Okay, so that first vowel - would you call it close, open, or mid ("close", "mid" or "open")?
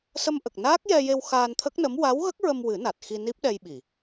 mid